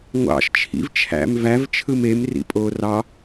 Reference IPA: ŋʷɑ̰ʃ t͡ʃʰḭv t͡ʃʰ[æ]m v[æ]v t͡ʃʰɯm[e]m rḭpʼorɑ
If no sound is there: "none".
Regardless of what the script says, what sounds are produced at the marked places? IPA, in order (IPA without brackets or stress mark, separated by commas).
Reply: æ̰, æ, e